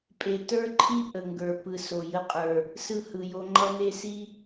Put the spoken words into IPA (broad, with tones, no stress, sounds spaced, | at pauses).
pʼ e˨ t ə˞˦ ǃʰ i˦ ʔ ə˨ ŋ ɡ ə˞˨ p ɯ˨ s o˨ j ə˦ qʼ ə˞˨ | s ɯ˦ h ɯ˨ j o˦ ŋ͡ǃ ʌ˦ n e˦ s i˦